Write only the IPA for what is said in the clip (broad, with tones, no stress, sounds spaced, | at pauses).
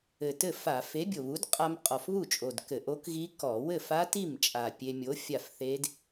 ɘ˨˩ t ɘ˥˩ f a˧˩˧ f e˨˥ bʲ o˨˩ β u˨˥ d qʼ a˧ m qʼ ɔ˨˩ f β u˥˩ t͡ʃʼ o˨˩ d k ɘ˧˩˧ ʔ o˦˥ k ɣ i˦˥ k ɔ˧˩˧ w ɘ˥˩ f a˦˥ t i˥˩ m t͡ʃʼ a˨˩ pʲ e˧ mʲ o˨˥ fʲ a˥˩ f θ e˦˥ d